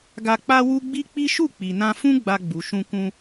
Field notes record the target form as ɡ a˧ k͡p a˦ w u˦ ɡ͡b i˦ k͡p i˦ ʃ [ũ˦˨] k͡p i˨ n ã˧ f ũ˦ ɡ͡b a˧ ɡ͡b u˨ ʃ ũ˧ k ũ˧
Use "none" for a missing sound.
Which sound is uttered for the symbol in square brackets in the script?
u˦˨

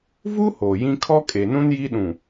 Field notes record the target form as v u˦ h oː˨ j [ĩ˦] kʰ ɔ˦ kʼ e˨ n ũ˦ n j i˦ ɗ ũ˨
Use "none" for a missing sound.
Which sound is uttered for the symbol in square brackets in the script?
ĩ˦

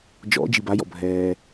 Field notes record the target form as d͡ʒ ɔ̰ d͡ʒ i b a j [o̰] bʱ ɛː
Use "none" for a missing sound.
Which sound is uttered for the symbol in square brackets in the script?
ɔ̰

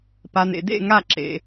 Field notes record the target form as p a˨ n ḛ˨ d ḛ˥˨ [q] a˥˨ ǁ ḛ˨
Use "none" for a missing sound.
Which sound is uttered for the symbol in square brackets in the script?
ŋ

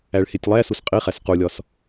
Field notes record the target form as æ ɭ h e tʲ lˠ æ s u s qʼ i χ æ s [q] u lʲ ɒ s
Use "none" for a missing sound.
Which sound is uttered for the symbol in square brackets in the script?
q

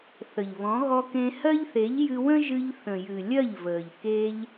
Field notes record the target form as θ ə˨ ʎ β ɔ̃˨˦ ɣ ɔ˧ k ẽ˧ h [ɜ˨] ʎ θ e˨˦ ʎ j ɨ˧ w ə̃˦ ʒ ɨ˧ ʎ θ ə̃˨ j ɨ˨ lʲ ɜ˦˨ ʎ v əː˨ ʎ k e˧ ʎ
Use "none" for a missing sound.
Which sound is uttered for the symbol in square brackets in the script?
ɜ˦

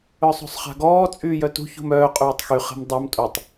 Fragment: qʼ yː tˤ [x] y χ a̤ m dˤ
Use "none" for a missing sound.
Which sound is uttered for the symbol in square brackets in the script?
x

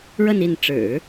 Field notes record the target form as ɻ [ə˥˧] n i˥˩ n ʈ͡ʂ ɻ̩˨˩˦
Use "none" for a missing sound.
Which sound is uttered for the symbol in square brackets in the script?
ə˥˧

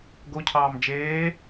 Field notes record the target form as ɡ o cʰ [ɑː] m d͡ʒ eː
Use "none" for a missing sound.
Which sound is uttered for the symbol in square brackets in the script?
ɑː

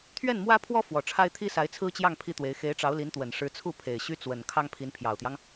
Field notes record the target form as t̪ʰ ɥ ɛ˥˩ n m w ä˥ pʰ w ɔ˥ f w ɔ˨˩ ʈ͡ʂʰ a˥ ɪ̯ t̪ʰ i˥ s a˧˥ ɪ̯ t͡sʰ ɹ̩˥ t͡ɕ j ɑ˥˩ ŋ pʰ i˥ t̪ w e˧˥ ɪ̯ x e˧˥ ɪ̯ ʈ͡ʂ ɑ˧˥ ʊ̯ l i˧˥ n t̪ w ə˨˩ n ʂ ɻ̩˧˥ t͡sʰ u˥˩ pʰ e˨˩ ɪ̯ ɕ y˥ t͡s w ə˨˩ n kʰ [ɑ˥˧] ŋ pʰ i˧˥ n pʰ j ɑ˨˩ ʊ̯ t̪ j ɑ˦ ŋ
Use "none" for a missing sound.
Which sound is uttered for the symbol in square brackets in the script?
ɑ˥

